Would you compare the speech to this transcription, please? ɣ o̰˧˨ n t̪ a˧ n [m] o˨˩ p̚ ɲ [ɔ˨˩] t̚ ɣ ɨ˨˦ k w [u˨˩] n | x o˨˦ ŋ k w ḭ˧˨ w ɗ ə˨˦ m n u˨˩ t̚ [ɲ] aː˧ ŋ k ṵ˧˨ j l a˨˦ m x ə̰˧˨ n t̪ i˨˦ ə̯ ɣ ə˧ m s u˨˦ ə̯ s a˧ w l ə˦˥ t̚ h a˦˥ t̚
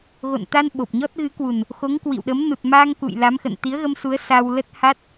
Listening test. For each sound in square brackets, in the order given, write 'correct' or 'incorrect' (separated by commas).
incorrect, incorrect, correct, incorrect